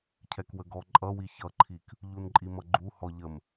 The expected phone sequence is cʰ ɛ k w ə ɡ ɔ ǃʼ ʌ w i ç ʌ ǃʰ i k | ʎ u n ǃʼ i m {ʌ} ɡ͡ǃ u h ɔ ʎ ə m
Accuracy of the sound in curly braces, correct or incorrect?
correct